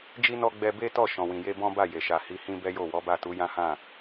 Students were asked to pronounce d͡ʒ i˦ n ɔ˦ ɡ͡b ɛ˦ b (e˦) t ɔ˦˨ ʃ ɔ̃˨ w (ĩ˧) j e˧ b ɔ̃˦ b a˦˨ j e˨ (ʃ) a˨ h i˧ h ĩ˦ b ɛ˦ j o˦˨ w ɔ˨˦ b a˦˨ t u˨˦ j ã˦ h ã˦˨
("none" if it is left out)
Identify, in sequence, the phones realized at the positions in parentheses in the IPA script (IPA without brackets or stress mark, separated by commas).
e˦, ĩ˨, ʃ